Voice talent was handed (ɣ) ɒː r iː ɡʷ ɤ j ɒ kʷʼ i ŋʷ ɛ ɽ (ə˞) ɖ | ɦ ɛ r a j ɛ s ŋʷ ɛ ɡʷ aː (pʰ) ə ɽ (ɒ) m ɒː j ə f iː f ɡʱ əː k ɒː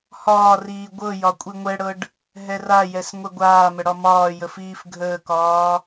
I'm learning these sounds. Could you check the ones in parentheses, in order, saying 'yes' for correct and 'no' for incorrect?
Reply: no, no, no, yes

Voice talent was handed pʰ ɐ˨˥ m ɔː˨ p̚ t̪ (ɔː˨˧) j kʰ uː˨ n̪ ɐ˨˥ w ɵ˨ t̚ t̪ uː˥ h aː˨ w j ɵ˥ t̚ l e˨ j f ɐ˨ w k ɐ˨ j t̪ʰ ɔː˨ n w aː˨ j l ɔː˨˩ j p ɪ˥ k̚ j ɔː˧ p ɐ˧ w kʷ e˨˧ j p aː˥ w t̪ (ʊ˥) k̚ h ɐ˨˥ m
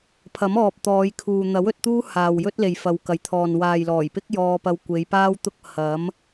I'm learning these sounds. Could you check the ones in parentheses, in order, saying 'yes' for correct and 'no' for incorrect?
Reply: yes, yes

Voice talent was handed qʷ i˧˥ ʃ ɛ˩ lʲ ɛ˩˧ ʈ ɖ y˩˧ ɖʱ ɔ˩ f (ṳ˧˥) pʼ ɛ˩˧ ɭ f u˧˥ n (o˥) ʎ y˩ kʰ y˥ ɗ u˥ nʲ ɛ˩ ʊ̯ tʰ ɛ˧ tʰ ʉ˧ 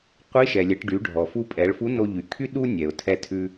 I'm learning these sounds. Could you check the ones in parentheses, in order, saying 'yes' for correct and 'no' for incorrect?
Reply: no, no

